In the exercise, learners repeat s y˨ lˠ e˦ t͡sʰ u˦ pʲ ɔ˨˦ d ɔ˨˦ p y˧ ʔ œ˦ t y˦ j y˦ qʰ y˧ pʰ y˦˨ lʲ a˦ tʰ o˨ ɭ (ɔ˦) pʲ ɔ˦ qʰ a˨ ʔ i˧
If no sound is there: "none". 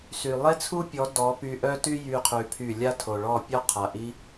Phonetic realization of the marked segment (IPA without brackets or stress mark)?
ɔ˦˨